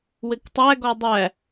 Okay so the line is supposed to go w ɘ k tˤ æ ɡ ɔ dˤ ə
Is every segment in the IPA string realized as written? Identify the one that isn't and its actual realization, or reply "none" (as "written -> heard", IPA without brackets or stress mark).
ə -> æ